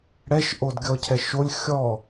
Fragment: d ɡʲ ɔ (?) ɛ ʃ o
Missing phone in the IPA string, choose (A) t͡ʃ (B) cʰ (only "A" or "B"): B